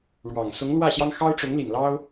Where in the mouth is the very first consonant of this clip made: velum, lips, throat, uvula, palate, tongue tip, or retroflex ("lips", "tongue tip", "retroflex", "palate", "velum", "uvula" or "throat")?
retroflex